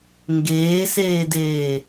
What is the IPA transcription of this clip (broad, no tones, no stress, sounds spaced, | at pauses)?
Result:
ŋ ɡ eː s eː d eː